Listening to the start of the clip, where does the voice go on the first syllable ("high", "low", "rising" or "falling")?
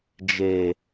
low